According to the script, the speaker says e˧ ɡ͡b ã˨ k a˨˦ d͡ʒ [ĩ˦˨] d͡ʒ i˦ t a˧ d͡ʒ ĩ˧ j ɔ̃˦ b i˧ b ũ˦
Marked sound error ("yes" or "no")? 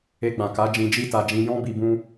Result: yes